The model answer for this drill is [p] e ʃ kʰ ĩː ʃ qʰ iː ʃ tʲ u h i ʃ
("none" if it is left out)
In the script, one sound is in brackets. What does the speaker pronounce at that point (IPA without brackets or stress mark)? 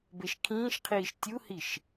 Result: b